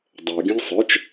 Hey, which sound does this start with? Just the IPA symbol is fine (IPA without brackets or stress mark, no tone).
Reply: dˤ